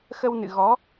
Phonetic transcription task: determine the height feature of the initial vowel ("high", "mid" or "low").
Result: mid